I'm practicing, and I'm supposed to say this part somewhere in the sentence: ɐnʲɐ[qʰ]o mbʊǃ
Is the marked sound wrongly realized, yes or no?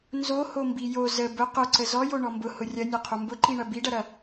no